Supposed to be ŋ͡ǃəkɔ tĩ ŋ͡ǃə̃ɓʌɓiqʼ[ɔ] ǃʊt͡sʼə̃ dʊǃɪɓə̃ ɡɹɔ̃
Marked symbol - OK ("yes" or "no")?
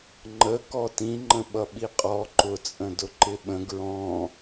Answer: yes